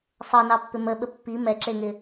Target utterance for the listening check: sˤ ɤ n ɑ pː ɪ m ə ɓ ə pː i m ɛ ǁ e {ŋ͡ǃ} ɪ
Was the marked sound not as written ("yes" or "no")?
yes